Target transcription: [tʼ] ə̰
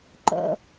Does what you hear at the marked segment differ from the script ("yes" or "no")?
yes